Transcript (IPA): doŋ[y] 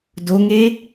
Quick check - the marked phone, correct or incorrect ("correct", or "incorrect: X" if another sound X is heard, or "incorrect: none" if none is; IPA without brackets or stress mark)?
incorrect: e